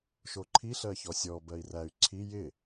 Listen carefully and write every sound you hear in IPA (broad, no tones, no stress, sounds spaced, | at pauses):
ʃ o ǃʰ i ɬ ɜ ç ɔ sʲ ɔ b ɜ i̯ r æ y̯ ǀʰ i j ɪ